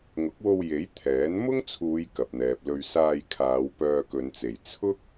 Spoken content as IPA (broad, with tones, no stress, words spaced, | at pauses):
ŋʊ˨˥k̚wo˧w je˨˥j t̪ʰɛː˨˥n mʊ˥ŋt͡sʰuː˨˧j kɐ˨p̚n̪ɛː˨p̚lɵ˧ɥ saː˧jkʰaː˨˧w pœː˧kɵ˨˧nt͡se˨˩j t͡sʰʊ˥k̚